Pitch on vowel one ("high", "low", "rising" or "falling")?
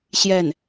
falling